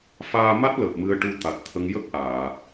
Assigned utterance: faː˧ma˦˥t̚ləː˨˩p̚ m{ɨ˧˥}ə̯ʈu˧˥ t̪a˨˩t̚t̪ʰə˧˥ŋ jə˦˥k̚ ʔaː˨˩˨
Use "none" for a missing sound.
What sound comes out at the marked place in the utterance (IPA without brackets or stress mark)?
ɨ˧˥